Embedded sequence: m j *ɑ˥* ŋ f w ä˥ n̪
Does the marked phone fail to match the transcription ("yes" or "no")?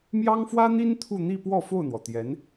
no